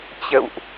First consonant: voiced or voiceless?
voiceless